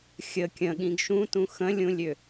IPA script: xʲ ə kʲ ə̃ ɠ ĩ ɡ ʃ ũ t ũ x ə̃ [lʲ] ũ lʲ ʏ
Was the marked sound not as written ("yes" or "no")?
no